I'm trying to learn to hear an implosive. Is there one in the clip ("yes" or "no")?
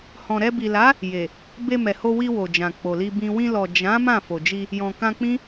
no